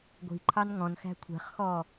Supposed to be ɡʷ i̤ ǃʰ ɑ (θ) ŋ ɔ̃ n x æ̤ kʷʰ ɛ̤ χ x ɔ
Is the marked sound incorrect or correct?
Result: incorrect